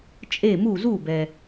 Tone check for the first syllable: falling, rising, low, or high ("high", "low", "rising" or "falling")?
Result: falling